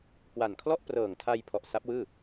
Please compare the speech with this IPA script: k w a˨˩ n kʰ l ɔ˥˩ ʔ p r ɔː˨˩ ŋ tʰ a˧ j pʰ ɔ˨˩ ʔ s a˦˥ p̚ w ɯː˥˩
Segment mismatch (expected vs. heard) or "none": ɔː˨˩ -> ɤː˨˩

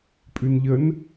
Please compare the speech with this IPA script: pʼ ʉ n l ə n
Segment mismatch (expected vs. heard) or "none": l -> ʎ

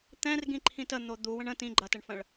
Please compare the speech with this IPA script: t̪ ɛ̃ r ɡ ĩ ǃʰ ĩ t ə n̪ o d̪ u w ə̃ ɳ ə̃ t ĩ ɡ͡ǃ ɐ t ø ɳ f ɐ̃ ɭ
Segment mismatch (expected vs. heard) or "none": ø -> ə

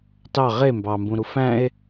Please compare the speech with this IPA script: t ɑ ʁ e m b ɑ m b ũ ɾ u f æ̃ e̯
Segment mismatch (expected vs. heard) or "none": none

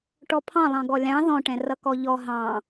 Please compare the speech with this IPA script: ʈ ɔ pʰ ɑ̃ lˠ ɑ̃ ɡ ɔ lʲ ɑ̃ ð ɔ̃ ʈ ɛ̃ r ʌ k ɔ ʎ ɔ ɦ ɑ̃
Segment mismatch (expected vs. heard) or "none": none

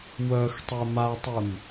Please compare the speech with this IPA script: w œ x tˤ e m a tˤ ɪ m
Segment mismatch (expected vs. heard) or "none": none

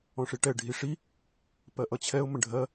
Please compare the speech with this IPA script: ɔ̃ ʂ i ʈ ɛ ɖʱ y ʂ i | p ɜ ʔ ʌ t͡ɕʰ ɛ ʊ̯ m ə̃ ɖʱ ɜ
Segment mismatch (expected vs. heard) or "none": y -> i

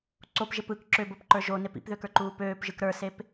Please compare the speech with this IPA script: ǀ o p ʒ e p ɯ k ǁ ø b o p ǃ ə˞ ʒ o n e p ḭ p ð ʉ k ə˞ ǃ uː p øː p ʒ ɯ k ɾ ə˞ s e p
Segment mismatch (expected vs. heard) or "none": ʉ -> ø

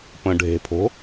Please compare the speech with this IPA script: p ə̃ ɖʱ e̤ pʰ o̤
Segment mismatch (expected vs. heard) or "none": none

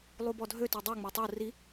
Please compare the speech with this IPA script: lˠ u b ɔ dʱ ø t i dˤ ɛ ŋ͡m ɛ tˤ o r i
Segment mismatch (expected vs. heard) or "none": none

